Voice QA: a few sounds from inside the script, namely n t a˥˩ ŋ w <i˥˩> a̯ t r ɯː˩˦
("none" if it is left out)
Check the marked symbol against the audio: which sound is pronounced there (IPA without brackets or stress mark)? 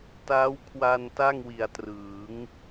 i˨˩